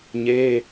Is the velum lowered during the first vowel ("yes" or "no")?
no